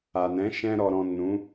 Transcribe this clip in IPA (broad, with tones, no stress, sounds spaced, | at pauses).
a˨ n ɛ̃˨˦ ʃ ɛ̃˧ ɾ ɔ˨ ɾ ɔ̃˨ n ũ˨˦